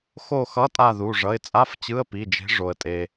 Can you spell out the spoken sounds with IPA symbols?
x o˥˨ x ʌ˧˥˧ tʼ a˥˨ ð u˩˧˩ ʐ ʌ˩˧˩ ɪ̯ t͡sʼ a˧˥˧ f t͡ɕ ɯ˧˥˧ ə̯ p i˩˧˩ d͡ʒ e̤˨˥ ʐ o˩ ə̯ tʼ e˩

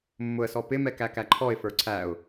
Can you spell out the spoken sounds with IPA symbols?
mː ʊ ə̯ s ɔ p ɪ m ɛ k æ k æ ǃʰ ɔ ɪ̯ f ə˞ ǀʰ æ ʊ̯

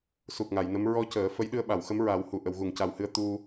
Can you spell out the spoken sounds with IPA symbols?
s u˨˩ k̚ ŋ a˨˩˨ j n ə˧˥ m ɹ ɔ˧ c əː˨˩˦ f ə˧˥ j ɗ ɨ˧ ə̯ ɓ a˨˩˨ w x ə˧˥ m ɹ a˨˩˦ w h u˨˩˨ ʔ ə˨˩˨ w ɣ u˨˩˨ ŋ c a˨˩ w h ɨ˧ ə̯ t̪ u˧

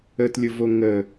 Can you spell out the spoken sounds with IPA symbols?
ə t lʲ ʊ v o ŋ ə

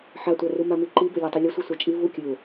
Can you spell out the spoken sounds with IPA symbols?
ħ a tʷ a r u m a m i ǃ i b ɵ lʲ a tˤ i lʲ ɵ sʷ i sʷ a t͡ʃʼ i v u kʲ ɵ ʊ̯

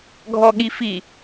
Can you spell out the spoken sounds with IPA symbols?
ɡʱ ɔ ɠ i f i

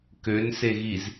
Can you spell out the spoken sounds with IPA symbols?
k ø n s e ɣ i z

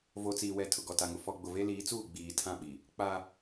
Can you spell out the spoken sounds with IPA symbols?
v o˨ t͡s iː˨ w ɛ˨ tʰ ʊ˨ ɡ ɔ˨ t a˨ ŋ ʊ˨ f ɔ˨ ɡ͡b ʊ˨ v e˦ l iː˨˦ t͡s uː˦˨ ɡ͡b iː˨ tʰ ã˦˨ ɓ i˨ | k͡p a˦

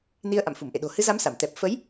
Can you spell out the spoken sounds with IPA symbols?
n i˧ ə̯ ʔ a̰˧˨ m f u˧˩ m ʔ ḛ˧˨ ɗ o̤˨˩ h ɨ˨˦ z a˨˦ m s a˧˩ m t̪ ɛ˨˩ p̚ f ə˨˦ j

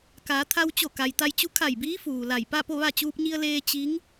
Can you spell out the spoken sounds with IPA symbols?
k a˩˧ t̪ʰ a˧ w t͡ɕ o˧˩ k a˩ j t̪ a˧ j t͡ɕ u˧˥ kʰ a˧˩ j b iː˧˥ f uː˩ l a˧˩ j p a˥˨ p o˥˨ ʋ a˥˨ t͡ɕ uː˧ p̚ ɲ i˧ ə̯ l eː˧ t͡ɕ i˧˥ ŋ

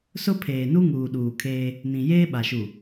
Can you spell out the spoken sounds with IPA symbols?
s ʊ˦ pʰ eː˨ n u˦ ŋ uː˨ ɗ uː˨ kʰ eː˦ | n ĩ˨ j eː˦ ɓ a˨ ʃ u˨

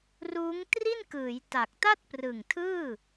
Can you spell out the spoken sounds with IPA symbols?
r uː˦˥ ŋ t r i˥˩ n k ɯː˩˦ j t a˨˩ k̚ t a˥˩ t̚ p r ɯ˨˩ ŋ tʰ ɯː˥˩

